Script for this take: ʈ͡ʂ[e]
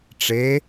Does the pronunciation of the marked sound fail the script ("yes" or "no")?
no